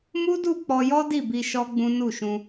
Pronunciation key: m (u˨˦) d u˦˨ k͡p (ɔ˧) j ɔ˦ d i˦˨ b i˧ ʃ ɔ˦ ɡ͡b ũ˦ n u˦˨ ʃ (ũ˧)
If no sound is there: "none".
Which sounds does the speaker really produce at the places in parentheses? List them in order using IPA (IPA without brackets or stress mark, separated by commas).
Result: u˦, ɔ˧, ũ˧